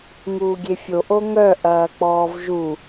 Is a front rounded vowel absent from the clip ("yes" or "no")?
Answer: no